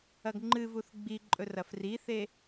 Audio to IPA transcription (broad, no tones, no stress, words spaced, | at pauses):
ɐɡŋ͡ǃɨvuθ ɡ͡biǃʼɵ rɐfriθe